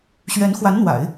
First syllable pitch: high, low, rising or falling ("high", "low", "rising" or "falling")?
rising